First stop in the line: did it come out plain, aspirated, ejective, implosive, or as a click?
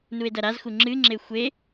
plain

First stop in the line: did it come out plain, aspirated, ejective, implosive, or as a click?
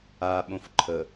implosive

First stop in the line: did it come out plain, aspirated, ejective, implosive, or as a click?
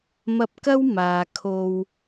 plain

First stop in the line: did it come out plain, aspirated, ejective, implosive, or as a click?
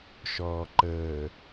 click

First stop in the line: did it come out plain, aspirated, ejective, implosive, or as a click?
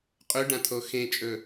ejective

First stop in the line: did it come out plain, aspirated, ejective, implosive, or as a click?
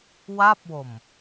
plain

